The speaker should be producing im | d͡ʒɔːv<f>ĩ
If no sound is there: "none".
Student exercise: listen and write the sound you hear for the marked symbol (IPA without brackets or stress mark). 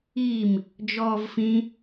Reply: f